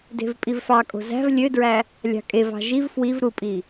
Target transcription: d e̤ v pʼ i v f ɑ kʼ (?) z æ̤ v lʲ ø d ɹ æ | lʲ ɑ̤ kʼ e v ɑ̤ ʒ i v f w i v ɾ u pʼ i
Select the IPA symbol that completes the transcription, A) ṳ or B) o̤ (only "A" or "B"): B